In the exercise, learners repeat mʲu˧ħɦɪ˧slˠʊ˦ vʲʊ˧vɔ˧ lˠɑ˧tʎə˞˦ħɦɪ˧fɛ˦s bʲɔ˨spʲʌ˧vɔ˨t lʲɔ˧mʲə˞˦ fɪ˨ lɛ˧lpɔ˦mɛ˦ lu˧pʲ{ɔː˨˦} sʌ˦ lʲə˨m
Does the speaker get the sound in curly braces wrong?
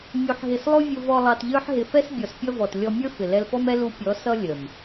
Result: yes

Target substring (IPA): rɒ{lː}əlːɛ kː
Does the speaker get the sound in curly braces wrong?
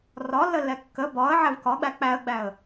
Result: no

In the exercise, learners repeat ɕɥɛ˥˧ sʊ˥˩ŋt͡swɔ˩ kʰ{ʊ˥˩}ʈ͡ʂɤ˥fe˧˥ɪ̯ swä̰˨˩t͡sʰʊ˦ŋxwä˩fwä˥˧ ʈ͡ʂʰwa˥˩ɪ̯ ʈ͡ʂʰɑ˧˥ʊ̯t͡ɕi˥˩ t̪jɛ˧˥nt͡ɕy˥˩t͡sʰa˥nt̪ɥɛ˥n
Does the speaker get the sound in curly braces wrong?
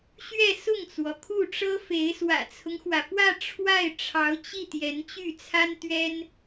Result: yes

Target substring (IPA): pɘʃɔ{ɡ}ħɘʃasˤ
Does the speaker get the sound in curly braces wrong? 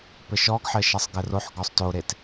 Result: no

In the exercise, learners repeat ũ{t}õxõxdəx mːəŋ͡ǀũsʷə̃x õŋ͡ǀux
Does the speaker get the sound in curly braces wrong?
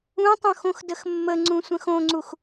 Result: yes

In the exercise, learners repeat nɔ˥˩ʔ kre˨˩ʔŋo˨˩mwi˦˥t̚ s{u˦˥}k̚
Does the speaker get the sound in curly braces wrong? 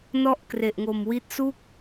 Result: yes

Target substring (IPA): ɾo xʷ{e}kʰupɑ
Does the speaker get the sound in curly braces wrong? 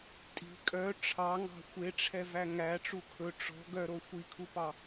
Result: yes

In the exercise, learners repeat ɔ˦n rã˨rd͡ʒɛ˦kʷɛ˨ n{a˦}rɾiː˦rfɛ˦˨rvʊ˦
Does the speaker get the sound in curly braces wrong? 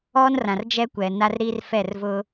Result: no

